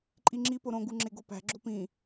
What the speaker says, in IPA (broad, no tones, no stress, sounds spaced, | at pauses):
ǃʼ i ŋ͡ǁ i p o ɾ õ ɡ u ŋ͡ǁ e ɡ o p æ̤ ɡ͡ǁ o p ĩ